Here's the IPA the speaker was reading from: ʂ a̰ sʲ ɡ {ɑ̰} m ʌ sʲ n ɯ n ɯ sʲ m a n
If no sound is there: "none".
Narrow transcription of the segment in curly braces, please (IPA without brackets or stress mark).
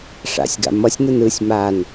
a̰